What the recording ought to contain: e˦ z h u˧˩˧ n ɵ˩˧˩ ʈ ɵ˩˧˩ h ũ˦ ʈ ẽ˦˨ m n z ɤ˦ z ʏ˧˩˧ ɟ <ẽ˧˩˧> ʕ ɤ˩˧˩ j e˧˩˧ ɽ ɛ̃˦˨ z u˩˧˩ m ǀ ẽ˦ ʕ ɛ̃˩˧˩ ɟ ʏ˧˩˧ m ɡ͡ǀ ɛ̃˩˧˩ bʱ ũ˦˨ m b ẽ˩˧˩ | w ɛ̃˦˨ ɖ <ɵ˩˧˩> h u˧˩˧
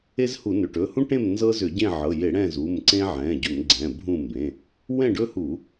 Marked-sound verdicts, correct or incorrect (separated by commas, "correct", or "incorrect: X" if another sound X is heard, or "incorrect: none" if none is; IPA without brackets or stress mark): incorrect: ẽ˦˨, incorrect: ɵ˦